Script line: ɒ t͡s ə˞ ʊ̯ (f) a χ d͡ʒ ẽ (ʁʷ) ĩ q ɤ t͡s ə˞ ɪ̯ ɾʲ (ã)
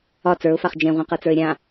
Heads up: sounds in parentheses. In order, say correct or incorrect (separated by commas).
correct, correct, correct